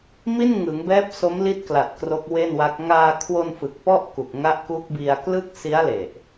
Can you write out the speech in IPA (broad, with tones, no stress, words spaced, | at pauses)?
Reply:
mi˥˩nŋɯ˩˦ŋbɛː˦˥p̚ so˦˥mli˦˥t̚kla˨˩t̚ kro˦˥k̚we˥˩nwa˦˥k̚ ŋaː˧kʰwo˧nfɯ˨˩k̚ pɔ˥˩ʔku˨˩k̚ŋa˦˥ʔ ku˦˥k̚bi˧a̯ klɯ˥˩k̚ si˦˥a̯le˨˩ʔ